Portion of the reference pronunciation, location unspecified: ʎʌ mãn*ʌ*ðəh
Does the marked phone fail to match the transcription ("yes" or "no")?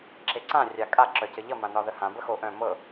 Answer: yes